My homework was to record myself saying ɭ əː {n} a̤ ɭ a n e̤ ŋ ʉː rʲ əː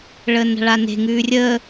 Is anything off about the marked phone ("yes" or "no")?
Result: no